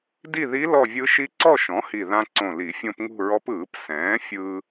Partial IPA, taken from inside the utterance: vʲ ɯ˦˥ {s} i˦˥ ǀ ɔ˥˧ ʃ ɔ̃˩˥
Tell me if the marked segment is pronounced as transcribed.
no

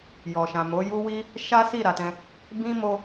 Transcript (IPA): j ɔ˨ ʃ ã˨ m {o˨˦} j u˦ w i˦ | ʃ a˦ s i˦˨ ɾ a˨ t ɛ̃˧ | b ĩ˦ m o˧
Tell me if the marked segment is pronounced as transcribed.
yes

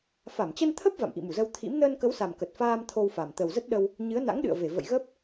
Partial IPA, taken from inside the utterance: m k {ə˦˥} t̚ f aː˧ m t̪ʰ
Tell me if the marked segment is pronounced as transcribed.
no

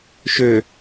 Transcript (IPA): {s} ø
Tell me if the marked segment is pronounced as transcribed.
no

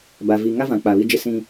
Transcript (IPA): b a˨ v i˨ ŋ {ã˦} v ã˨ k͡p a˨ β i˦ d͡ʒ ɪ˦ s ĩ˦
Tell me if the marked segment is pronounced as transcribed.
no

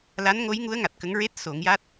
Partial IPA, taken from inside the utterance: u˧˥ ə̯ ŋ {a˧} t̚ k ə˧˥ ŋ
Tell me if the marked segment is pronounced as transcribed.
no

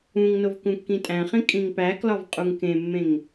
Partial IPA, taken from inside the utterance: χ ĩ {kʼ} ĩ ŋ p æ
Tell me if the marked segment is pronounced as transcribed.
yes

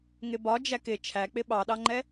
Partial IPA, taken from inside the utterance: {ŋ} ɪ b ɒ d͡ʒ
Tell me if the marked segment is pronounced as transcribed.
yes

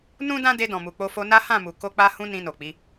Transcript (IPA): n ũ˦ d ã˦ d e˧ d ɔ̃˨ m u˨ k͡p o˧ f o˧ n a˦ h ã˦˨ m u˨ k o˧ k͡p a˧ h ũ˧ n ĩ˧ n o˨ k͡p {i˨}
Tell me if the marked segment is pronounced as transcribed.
no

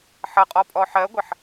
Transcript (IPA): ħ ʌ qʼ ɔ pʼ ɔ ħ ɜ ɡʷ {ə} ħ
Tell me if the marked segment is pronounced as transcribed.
yes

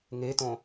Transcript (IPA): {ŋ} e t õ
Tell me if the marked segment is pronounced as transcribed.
yes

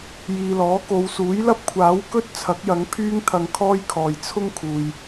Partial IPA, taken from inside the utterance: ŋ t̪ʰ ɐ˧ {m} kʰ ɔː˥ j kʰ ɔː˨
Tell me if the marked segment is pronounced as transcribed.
no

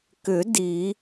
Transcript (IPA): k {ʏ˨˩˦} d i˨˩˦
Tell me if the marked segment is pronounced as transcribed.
yes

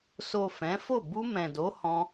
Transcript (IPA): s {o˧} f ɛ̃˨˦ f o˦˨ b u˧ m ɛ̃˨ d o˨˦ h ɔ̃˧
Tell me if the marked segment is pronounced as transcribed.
no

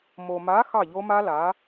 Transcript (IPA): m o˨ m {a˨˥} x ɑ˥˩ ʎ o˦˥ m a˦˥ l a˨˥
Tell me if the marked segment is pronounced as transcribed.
yes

